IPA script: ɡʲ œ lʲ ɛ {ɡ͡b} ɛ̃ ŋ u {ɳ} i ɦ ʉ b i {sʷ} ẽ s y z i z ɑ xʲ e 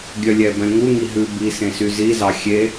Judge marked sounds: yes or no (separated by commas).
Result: no, no, no